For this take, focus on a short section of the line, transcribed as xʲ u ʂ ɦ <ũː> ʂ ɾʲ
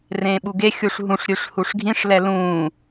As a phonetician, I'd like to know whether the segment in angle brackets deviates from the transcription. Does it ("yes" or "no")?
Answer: yes